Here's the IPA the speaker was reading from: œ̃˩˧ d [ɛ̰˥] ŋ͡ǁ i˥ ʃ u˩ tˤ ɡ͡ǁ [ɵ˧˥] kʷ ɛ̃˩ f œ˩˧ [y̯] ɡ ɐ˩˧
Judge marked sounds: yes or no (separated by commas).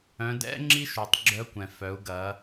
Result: yes, no, no